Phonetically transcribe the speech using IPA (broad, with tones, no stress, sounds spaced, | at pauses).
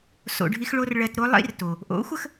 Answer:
s o̰˨ ɖʱ i˧ x ɭ o˧ r ɭ ɜ˨ t ɾ o˧ lˠ ḭ˦ r t o˨ | ʔ o̰˨˦ xʷ ə˧ x